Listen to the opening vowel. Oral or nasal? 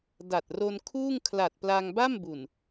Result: oral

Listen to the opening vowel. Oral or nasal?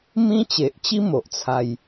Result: nasal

